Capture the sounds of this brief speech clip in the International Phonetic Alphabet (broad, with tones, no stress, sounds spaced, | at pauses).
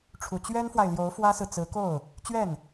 ʈ͡ʂʰ u˨˩ t͡ɕ ɥ ɛ˥ n f w a˨ ɪ̯ l j o˧˥ ʊ̯ f w ä˥ s ɹ̩˨ t͡s ɹ̩˧˥ k o˥˩ ʊ̯ | t͡ɕ ɥ ɛ˥˩ n